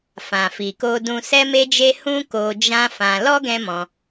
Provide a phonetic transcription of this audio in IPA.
f ã˨ f i˨ k o˧ d ũ˧ s ɛ˦ m e˦ d͡ʒ e˦ h ũ˦ k o˧ d͡ʒ ã˦ f ã˧ l ɔ˦ ɡ ɛ̃˦ m ɔ̃˧

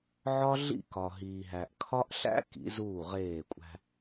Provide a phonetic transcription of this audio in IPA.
ʕ ɒ˦ ɮ ḭ˦˨ k ɒ˨ ɦ iː˨ ɦ æ˨ ʔ kʰ ɒ˦ ʔ ɬ æ̰˦ k ḭ˨˦ z uː˦˨ ʁ eː˦˨ kʷʼ æ̤˦

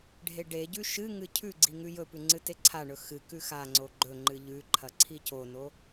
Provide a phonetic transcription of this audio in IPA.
ɖʱ e ɖ e ɟ ʉ ʃ ɨ ŋ ɨ cʰ ʉ ɡ͡ǀ i ŋ ʉ j ɵ p ʉ ŋ͡ǀ ɨ t e ǀʰ a ɳ ɵ x ɨ k ʉ x a ŋ͡ǀ o ɡ͡ǃ ɵ ŋ͡ǃ ɨ ʎ ʉ ǃʰ ɐ ǀʰ i c o n o

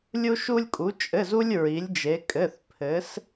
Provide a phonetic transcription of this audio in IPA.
lʲ u˧ ʃ u˧ lʲ kʼ u˩˧ t͡ʃʼ ɘ˩˧˩ z u˧ lʲ ɹ i˩˧ lʲ d͡ʒ e˩˧ kʼ ɘ˩˧˩ θ pʰ ɘ˩˧ s

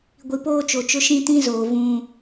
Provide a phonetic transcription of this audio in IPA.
ɡʷ i˨ p oː˦ t͡ʃ o˨ t͡ʃ ʊ˦ ʃ ĩ˦ t ĩ˦ z oː˨ v ũ˦

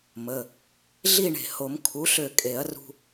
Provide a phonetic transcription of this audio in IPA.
m ə˩˧˩ | ɮ i˥˨ ɳ e̤˧˩ h o˨˩˦ m kʰ u˩˥ ɬ ø˧˩ kʼ e˨˩˦ ɐ̯ r ṳ˧

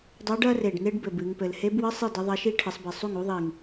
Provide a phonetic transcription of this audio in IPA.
dˤ u˧˥ ɖ ɐ˥ r e˨˩ ɖ n e˥ ɖ b ɘ˨˩ b ɨ˩˧ ŋ p ɘ˩˧ l h e˧˥ b w ɨ˧˥˧ sˤ ɨ˥˩ d ɘ˧˥ ðˤ ɐ˧˥ ʃ i˥ ʈʰ ɨ˩˧ sˤ b ɘ˨˩ sˤ u˥˩ ŋ u˧˥ ðˤ i˨˩ ŋ

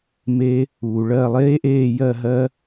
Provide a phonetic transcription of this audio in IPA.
m e˦ | uː˨ ɭ ɜ˦˨ lˠ eː˦ ʔ eː˦˨ j ɜ˦˨ ɦ ɜ˦

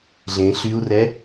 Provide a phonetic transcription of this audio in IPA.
ɮ ẽ ɬ y u̯ r ɛ

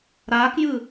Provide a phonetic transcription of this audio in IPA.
ɾ aː k j ɯ

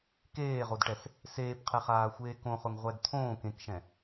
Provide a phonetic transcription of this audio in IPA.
k eː ʁ o d ʈ ɛ s | s eː p qʰ ɛ χ aː xʷ eː k õ χ ʊ ŋ ʁʷ ɛ d t̪ʰ õː k ẽ k ʃ ɛ̃

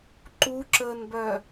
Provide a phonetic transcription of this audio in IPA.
ǃ u ǁ əː n b œ

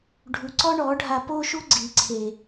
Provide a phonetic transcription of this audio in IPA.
ɖʱ u˨ ǀ ɔ˦ ɳ ɔ˨˦ ɖʱ a˧ p o˦ ʃ u˦ ɡ͡ǀ i˨ ǀʰ e˨

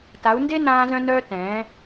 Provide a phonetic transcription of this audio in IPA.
t a˨˦ u̯ n d e˦ n ãː˦ z œ̃˦ n œː˦ t ɛ̃ː˨˦

